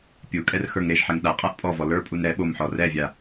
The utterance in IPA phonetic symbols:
pʲ u kʼ ɛ r x ə˞ ŋ ɾ e ʒ ħ ɛ ŋ ɗ a qʼ a ʔ pʼ ɔ v ɔ l ə˞ pʼ u n ɾ ɛ ɓ o m ħ ɔ r ɛ vʲ a

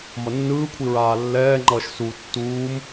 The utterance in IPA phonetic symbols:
m ʌ nː ɯː kʷʰ i ɹ aː lː ɛː ŋ͡ǃ ʌː ʃ s u tː uː m

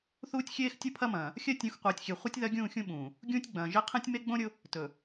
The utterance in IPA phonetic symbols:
θ uː˦ tʲ xʲ eː˦ x tʲ o˦ pʰ ɐ˦ m ɐ̃ː˨ | xʲ ɜ˦ tʲ ũ˨˦ x qʷ eː˨ tʲ xʲ e˨ χʷ ɐ˦ tʲ ð ɐ˦ ɡʲ ũː˦˨ xʲ ũ˦ ɓ ũː˨ | ɡʲ ũː˦ tʲ ɡ͡b ɐ̃ː˨ ʒ e˦ qʰ ẽ˦ tʲ m e˦ ɡ͡b õ˦ ɾʲ ʊ˦ | t ɵ˨

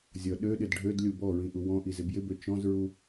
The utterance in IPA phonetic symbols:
zʲ ʌ ɗ ø ɗ ɪ d ɖʱ ø d lʲ u b ɔ ɹ ĩ ʔ u w ɔ̃ ʔ i z ɪ b j ɪ b ø t͡ʃ ɔ̃ z ɹ u

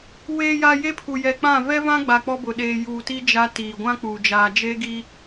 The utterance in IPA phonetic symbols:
w eː˨ j a˨ j e˦ pʰ u˨ j ɛ˨ k͡p ã˦˨ v ɛ˦ v ã˦ ɡ͡b a˨ k͡p ɔ˦ b ʊ˨ ɗ eː˨ j uː˨ t i˦ d͡ʒ a˦ t iː˨ ɡʷ ã˦ k͡p uː˨ d͡ʒ aː˨ d͡ʒ e˦ ɡ i˦

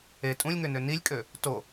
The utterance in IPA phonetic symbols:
e tʼ ũ lʲ ŋ ø n ø n i lʲ kʼ ø | t o

